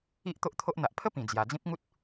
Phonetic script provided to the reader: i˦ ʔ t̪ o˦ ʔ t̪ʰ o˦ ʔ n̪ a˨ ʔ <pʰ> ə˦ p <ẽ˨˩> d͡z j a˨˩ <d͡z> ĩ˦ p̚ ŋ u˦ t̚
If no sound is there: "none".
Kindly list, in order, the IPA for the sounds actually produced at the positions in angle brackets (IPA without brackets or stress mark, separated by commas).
pʰ, ĩ˨˩, d͡z